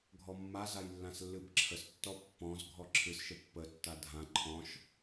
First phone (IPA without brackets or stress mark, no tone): ɡʱ